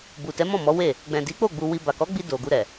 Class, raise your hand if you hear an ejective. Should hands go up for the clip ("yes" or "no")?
no